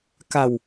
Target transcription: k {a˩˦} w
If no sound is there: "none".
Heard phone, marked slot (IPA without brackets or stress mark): a˧